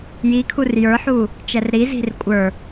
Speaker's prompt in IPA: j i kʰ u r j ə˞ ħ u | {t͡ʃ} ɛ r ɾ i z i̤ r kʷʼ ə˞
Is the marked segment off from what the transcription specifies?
no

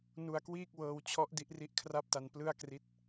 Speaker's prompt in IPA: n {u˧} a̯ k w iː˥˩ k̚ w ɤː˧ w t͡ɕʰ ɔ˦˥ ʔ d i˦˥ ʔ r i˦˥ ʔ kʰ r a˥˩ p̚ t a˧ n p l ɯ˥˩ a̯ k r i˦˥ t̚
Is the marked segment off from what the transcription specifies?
no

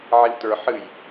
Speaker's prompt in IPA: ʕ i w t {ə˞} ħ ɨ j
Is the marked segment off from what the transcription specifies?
no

